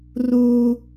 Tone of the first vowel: high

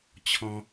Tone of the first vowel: high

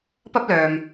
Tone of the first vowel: high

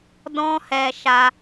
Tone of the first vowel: high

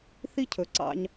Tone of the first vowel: high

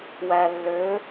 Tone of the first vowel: low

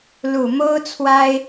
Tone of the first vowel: low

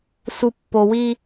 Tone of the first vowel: low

